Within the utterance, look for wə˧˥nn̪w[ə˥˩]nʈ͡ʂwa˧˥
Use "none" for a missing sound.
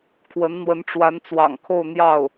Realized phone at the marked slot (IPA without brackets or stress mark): ə˧˥